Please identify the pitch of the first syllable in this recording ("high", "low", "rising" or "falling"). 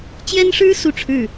high